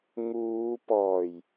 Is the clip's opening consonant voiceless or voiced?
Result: voiced